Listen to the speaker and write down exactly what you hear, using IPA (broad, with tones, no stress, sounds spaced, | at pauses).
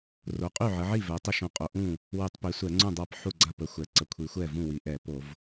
r o˩˧ qʼ y˥˩ ʕ ə˩˧ ʕ i˥˩ v ɛ˩˧ tˤ ə˥˩ ʃ õ˧˩˧ qʼ o˩˧ ʔ ũ˥˩ | w y˧˩˧ tˤ p i˩˧ sʷ ɛ˧˩˧ ŋ͡ǀ ũ˥˩ dˤ a˥˩ p ħ u˥˩ ɡ͡ǀ a˥˩ p ə˩˧ xʷ ɛ˩˧ ǀ ə˩˧ kʷʰ i˩˧ xʷ ɛ˥˩ v ũ˥˩ w i˩˧ ʔ ɛ˧˩˧ p o˧˩˧ v